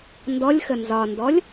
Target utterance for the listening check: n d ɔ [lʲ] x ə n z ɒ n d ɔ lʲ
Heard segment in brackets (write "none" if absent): lʲ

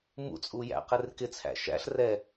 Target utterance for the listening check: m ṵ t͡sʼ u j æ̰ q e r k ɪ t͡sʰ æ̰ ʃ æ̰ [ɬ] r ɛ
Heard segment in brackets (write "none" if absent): ɬ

